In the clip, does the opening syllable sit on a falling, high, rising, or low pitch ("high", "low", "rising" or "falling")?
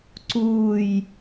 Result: low